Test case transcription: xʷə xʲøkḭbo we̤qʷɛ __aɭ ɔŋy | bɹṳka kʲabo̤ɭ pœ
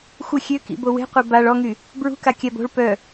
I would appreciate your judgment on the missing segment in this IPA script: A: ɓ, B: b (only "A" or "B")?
B